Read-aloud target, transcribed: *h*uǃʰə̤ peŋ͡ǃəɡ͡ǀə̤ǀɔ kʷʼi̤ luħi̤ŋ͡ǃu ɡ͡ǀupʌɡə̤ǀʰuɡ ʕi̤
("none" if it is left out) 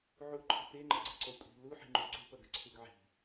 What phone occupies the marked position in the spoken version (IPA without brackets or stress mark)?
ʕ